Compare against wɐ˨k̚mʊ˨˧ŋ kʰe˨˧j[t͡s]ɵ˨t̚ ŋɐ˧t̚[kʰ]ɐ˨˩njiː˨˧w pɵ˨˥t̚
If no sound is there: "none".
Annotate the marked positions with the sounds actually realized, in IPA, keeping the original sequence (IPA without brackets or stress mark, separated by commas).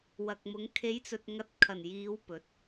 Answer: t͡s, kʰ